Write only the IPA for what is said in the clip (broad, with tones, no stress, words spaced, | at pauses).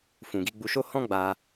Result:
fũ˨ɡi˨˦ɡ͡bu˧ʃo˦ hɔ̃˦ɡ͡ba˧